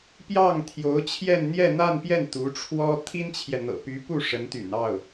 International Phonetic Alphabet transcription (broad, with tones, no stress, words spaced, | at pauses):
pjɑ˥˩ŋt̪ʰjo˧˥ʊ̯t͡ɕʰjɛ˥˧n n̪jɛ˥˧n̪a˥˧npjɛ˥˩n t̪u˧˥ʈ͡ʂʰwɔ˥ t̪ʰi˥nt͡ɕʰjɛ˨ n̪ɤ̰˨˩py˧˥pu˥˩ ʂə˧˥nt̪y̰˨˩nɑ˥˩ʊ̯